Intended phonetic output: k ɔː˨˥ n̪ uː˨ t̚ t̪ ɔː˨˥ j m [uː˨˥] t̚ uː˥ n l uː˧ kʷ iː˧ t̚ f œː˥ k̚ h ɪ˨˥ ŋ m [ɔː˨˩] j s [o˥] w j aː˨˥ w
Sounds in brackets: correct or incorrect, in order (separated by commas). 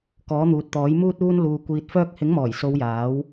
incorrect, correct, incorrect